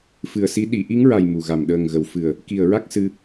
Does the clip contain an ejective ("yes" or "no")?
no